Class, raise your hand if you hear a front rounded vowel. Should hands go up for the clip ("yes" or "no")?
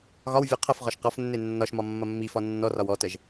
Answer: no